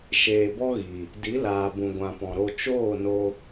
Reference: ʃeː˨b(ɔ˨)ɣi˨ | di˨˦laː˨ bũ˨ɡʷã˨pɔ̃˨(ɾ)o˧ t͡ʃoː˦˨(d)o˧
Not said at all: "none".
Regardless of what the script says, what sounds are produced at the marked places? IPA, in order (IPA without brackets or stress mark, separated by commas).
ɔ˦, ɾ, n